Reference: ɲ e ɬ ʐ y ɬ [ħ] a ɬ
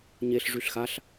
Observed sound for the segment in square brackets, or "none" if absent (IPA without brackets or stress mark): x